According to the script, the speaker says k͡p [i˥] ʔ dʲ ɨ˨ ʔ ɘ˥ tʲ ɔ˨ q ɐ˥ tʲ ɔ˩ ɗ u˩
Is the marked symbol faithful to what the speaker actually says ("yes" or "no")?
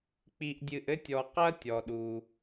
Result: no